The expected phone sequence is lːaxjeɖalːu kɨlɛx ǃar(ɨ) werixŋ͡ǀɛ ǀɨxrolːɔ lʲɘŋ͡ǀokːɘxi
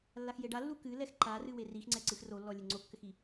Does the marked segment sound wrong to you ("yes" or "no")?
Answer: no